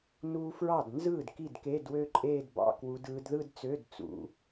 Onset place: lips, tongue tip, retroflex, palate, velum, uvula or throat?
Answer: tongue tip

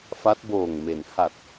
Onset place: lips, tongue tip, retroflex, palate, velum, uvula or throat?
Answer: lips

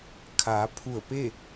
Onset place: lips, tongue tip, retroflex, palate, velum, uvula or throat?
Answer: velum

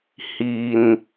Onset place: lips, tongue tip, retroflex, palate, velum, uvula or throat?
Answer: throat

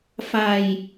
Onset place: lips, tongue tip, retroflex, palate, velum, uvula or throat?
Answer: lips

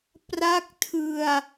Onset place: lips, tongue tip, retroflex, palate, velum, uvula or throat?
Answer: lips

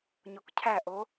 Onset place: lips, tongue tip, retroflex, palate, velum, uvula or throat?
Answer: palate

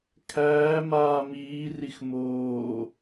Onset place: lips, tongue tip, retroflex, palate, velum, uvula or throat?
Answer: velum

